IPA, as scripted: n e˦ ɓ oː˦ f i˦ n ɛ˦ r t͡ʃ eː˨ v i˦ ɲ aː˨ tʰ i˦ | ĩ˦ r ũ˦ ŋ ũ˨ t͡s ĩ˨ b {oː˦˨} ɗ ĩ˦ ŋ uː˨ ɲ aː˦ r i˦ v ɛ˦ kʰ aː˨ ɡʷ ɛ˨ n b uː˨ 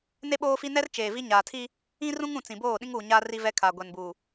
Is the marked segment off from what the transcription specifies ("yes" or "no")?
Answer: no